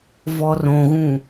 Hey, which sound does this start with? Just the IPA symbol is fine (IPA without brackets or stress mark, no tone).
v